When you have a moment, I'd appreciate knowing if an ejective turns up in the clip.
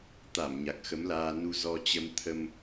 no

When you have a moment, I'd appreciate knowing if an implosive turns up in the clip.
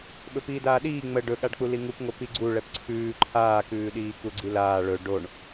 yes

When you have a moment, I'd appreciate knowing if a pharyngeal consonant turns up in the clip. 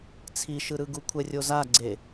no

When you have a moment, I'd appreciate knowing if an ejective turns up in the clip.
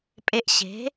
yes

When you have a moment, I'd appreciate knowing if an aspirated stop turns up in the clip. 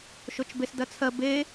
yes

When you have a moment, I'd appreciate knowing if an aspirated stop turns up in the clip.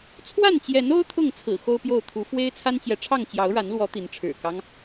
yes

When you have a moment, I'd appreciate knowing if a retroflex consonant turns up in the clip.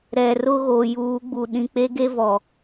no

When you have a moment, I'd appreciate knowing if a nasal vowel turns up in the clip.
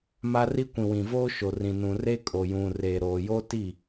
yes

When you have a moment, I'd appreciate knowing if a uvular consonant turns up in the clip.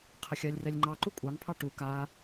yes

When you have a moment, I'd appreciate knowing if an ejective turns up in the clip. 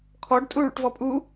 yes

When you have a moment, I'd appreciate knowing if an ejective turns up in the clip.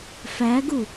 no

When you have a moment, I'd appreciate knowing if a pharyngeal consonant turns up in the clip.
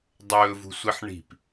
yes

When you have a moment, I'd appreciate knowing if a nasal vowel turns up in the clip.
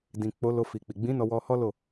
yes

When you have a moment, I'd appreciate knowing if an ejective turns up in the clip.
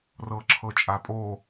yes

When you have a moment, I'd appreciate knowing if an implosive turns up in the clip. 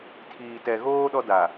yes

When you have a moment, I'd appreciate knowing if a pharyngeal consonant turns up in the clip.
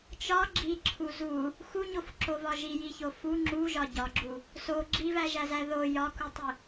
no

